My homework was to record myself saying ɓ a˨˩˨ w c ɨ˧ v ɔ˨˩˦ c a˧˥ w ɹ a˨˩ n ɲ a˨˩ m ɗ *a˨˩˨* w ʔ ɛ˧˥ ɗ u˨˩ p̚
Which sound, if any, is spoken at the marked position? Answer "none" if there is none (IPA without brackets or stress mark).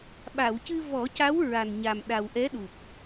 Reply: a˨˩